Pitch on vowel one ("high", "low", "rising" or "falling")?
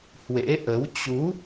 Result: rising